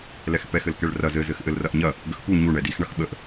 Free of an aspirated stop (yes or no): yes